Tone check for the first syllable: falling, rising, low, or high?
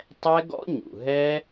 high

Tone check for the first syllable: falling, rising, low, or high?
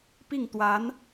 falling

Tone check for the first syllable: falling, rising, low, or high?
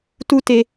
high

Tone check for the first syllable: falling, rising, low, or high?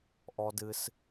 high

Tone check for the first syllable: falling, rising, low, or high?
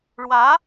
rising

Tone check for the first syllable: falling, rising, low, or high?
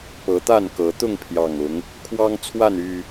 rising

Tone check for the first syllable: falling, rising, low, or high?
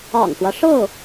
low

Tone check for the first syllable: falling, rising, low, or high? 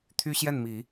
high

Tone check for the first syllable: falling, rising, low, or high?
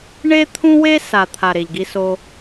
high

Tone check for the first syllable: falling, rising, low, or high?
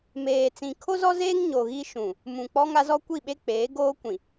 low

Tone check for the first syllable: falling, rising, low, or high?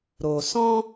low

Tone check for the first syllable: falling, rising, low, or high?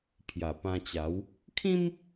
low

